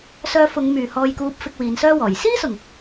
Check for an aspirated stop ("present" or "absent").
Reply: absent